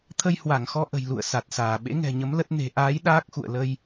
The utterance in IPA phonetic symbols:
t̪ʰə˧jhwa˧˩ŋxɔ˧ʔə̤˨˩j lṵ˧˨ə̯sa˨˩t̚saː˧˩ ɓḛ˧˥ŋɛ̤˨˩ɲə˨˦m lə˦˥t̚ ne̤˨˩ʔaː˨˦j ɗaː˦˥k̚xṵ˧˨ə̯ lə˧j

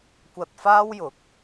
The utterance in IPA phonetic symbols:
kʷɐ˧t̚faː˥wjʊ˨˥k̚

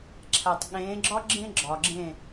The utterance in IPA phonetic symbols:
ǁʰæ˨tˤɠẽː˨˦ɡ͡ǁɒ˦ ɡ͡ǁẽ˦ ɡ͡ǁɒ˨ɡ͡ǁẽ˦˨

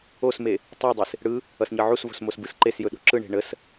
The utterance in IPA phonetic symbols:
osme | tˤudˤes | ɽɯ | ʌsɲʌʕusvo̤s mosbɯsǃesjɵ ɗo̤ǁɯɳe̤ ɳəs

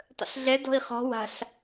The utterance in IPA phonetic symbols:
tˤə̰ɬɮɛ dɔ̤i̯χɔ̤ wa̤ɬ

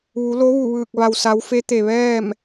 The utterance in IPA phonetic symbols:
ʋu˩˧lo˧˥ʋu˧˩ʋɯː˧˩k̚ ʋa˩wsa˩˧w fe˧˥t̪e˩ʋɛː˥˨m

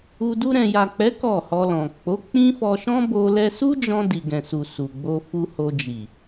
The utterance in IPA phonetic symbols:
u˧ du˧ɾɛ̃˨ja˨k͡pɛ˨˦ kɔ˦˨hɔ˧lɔ̃˨ k͡po˨˦k͡pĩ˦fɔ˧ ʃɔ̃˦bo˧ lɛ˧su˦d͡ʒɔ̃˧ di˨ɡɛ̃˨su˨ su˨ɡ͡bo˧ fu˧ ho˧ d͡ʒi˨

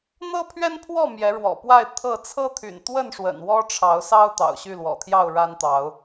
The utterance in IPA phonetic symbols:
n̪ɤ˦pʰɥɛ˦npʰwɔ˥˨ mjɛ˨˦ɻwɔ̰˨˩ pwa˥˨ɪ̯ t̪ʰɤ˥˨ t͡sʰɤ˦t̪ʰy̰˨˩nt̪wə˥˨nʂwə̰˨˩n wɔ˦ʈ͡ʂʰɑ˨˦ʊ̯sɑ˦ʊ̯ t̪ɑ̰˨˩ʊ̯ɕy˥˨lwɔ̰˨˩t̪ʰjɑ˥˨ʊ̯ ɻa˦nt̪ɑ˨˦ʊ̯

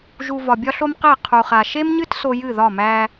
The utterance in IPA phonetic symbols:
ʒu˨ vɒ˨bʲɒ˦ɬo˦mqe˦˨ qʰu˨χa˨ ʃe˦mɲɨ˦t so˦ jɨ˦˨ðɒ˦˨mæ˦

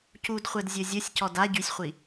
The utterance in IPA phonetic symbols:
cudχʷɛd zʲozʲosʲcɔd a ɟysʲχʷi

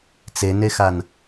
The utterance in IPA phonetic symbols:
t͡senexan

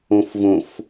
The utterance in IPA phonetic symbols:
õfvõf

